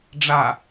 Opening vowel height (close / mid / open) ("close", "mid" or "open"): open